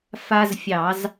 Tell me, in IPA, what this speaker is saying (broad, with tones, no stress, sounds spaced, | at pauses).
f a˦ z fʲ ɑ˧˩˧ z